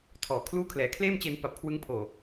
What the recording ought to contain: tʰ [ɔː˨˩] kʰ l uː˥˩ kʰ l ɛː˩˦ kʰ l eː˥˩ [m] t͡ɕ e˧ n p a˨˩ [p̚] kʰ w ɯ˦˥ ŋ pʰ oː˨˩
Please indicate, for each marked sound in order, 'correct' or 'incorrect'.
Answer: correct, correct, correct

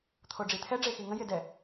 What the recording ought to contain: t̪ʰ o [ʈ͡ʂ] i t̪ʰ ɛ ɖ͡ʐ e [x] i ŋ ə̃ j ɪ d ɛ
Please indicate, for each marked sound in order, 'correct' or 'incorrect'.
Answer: incorrect: ɖ͡ʐ, correct

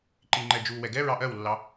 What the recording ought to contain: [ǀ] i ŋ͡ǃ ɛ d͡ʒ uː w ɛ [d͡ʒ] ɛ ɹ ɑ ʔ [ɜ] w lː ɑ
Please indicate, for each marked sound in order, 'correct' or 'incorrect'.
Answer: incorrect: ǃ, incorrect: ɡ, correct

